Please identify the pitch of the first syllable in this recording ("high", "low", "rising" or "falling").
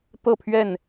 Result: falling